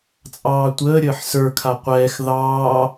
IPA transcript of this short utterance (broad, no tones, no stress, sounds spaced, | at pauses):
t͡sʼ ɑː tʷ əː ɾʲ əː ħ s ə˞ kʰ a qʷ ɛː x ð ɑː